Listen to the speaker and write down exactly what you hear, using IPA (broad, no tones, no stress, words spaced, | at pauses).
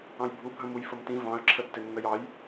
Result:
ɑ̃jbʱu bʱə̃mujfəmtĩ vɑ̃ə̯ ǁʰətːɪnːəjɑj